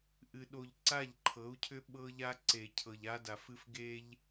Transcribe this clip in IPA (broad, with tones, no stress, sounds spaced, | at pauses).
ʔ ɨ˨ ɗ o˨ ʎ ǀ a˦˨ ʎ ǃʰ ɤ˨˦ u̯ cʰ ʏ˦ ɓ ɤ˦ ʎ a˦ ǀ e˨ cʰ ɤ˨ ʎ a˦ d a˨ f ɨ˦ f ɡ e˦ ʎ